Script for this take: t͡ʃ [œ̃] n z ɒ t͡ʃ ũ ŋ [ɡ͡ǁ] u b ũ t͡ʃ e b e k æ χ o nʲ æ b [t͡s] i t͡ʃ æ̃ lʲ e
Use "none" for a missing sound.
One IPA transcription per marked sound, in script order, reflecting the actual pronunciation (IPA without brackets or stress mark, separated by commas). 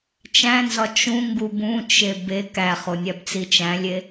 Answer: æ̃, ɡ, t͡s